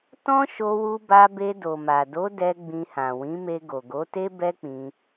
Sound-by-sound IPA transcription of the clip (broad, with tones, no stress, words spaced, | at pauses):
tɔ̃˦ ʃo˧wu˧ba˧be˧ do˨ma˨do˨˦ dɛ˧ ɡ͡bĩ˧hã˨ wĩ˨˦me˧ ɡo˨ɡo˨˦te˦ bɛ˦k͡pĩ˧